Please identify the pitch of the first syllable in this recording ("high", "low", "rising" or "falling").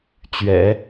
low